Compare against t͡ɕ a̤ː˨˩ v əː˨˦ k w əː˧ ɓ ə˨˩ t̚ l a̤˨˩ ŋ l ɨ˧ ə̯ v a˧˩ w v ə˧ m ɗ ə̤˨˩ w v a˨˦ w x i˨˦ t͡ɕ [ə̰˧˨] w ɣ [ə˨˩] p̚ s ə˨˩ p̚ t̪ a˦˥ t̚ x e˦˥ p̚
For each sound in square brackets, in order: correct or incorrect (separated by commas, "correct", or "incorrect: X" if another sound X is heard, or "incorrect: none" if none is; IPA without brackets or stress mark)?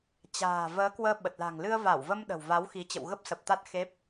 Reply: correct, incorrect: ə˦˥